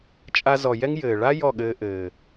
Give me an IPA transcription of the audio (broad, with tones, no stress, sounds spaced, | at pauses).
t͡ʃʼ a˧ z ɔ˨ j ɛ˦ ŋ j ɘː˨ ɭ a˦ j ɔ˦˨ ɠ ɘː˧ ʔ ɘː˨